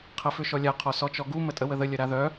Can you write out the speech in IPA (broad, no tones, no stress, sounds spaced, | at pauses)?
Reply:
qʰ ɐ f ʏ ʃ ɔ lʲ a qʰ ɔ s ɔ t͡ʃ ɔ ɡ u m ə tʼ ə w ə ð ə lʲ ɐ ɾ a ð œ